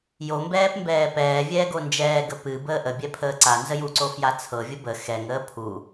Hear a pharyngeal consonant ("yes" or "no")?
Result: no